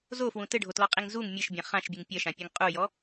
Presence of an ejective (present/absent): present